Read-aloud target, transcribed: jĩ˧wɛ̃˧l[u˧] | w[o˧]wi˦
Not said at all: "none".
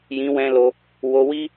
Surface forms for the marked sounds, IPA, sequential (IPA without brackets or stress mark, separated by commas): o˧, o˧